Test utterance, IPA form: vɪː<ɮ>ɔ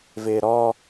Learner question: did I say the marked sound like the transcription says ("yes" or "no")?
no